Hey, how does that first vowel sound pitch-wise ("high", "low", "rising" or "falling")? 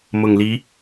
low